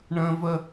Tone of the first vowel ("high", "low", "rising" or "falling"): high